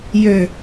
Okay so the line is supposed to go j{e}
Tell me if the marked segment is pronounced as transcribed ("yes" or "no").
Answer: no